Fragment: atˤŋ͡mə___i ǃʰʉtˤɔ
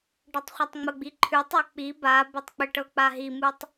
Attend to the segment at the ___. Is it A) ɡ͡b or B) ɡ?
A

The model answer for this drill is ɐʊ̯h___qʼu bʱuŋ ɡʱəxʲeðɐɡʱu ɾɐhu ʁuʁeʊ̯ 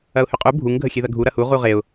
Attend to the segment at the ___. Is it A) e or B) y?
B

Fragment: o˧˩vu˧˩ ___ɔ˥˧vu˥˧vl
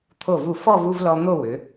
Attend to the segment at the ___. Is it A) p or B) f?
B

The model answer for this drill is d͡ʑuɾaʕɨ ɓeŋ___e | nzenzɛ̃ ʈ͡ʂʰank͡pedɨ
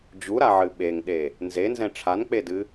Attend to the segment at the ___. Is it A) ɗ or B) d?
A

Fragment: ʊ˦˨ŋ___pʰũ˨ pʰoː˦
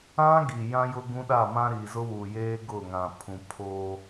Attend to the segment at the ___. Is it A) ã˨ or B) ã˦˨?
A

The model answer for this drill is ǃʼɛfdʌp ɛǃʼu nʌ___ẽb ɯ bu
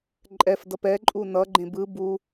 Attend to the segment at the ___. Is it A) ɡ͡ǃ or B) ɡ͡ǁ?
A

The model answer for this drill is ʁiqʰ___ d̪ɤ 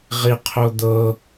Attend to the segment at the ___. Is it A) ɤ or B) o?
B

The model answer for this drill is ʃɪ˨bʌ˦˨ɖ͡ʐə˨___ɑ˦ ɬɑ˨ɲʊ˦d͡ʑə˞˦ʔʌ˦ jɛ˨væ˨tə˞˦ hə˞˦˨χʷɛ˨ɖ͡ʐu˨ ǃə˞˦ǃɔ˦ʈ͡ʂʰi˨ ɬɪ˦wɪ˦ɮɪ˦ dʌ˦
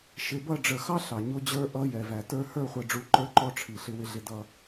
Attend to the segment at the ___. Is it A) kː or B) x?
B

